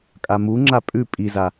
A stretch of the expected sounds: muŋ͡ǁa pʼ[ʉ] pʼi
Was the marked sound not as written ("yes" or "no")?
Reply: no